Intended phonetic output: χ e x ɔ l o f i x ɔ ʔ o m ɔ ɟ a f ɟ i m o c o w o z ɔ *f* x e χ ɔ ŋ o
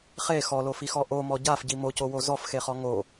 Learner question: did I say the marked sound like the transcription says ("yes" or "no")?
yes